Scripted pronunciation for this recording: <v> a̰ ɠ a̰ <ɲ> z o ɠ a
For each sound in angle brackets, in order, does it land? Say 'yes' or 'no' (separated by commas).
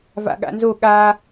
yes, no